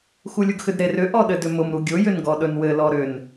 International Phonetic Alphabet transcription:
xulʲʊɡxʏdɾer ʏ ʔɔɗɘdʏmʊm ɾuɡʲʊ jʏnɡɔɗɵnwɘ lɔɾʏn

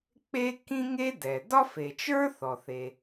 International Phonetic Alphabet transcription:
k͡pe˥ kĩ˥ŋe˥ dɛ˩ dɒ˥fe˩ t͡ʃə˞˥ θɔ˩θe˩

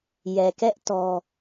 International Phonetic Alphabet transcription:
jɛ˨kɛ˦ʔ tɔ˦

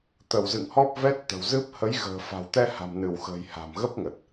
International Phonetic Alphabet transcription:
t̪ə˧˩wzɨ̰˧˨ŋhɔ˦˥p̚ vɛ˦˥t̚t̪ə̤˨˩wzɨ˦˥p̚ hə˨˦jɣə̤ː˨˩ fa̤˨˩wt̪ɛ˧ha̤˨˩m nɨ˧˩wxə̤˨˩j ha̤˨˩mɣə˦˥p̚ŋə˨˩t̚

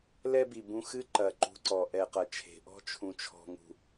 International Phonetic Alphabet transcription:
lɛ˦bi˨bũ˧ xɨ˦ǃɐ˨ ǃṳ˧ǀɔ˨ ʔɛ˨qɐ˨t͡ʃʰe̤˨ʔɔ̤˦ t͡ʃʰũ˨t͡ʃʰɔ̤˨ŋṳ˨

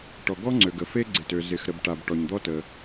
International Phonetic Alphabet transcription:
ʈɔ˩ɡɔ˥ŋ͡ǀø˩ ɡə˩fe˥ɡ͡ǀɪ˩tø˩ zɪ˩x ɾə˩bʈa˩b ʈɔ˩ɲd̪ɔ˥tə˩

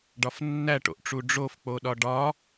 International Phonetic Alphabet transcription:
ɖɒfnːæʈo̰ʔʈ͡ʂu ɖ͡ʐofk͡poɗɒ ɖɒ

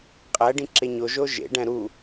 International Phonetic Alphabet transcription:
qʼæɖĩ ǁeɲoʒo ʒḛɖæ̃ ɾu

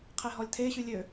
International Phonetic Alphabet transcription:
qʰeɦɔlʲtʰe ɕylʲø

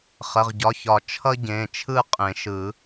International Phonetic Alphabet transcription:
χə˩˧˩ʁɟɒ˩˧˩çɒ˨˩˦ t͡ʃʰʌ˥ɟẽ˩˧˩t͡ʃʰɯ˥˨ qʼẽ˨˩˦ʃɯ˨˩˦

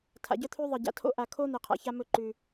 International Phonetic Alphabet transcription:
tʰa̰˨ɟœ˦t̪ʰʉ˦ðˤɘ˨ ɟa̰˨tʰo̰˦ʔa˨kʰo˦ n̪ɛ˨qʰa̰˨ça˦ mɵ˦˨ǃʉ˨

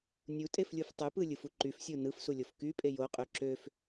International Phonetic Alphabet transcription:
nʲutʼeflʲuf tˤypɯlʲɯfu ǃyfsʲo nɯfsulʲof kypʼe joqʼø ǁøf

